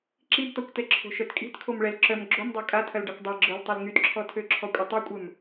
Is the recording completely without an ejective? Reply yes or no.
no